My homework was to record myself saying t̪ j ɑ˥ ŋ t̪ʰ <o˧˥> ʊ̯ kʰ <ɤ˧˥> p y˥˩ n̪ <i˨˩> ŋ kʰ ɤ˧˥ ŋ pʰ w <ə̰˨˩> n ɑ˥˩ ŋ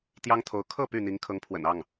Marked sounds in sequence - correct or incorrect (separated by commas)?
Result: correct, incorrect, incorrect, correct